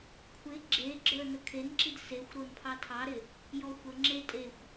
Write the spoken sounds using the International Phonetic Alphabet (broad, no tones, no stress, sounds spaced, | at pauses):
kʷʰ ɪ ɡ͡ǁ e ɡ͡ǁ ə˞ n ə kʰ e n ǁ i d s e xʷ ɾ o n pʰ ɑ tʰ ɑ ɾ ɪ | j ɔ xʷ ə ŋ͡ǁ e tʼ e xʷ